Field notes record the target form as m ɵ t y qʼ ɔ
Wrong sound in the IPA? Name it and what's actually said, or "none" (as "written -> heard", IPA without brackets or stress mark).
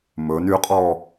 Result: t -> n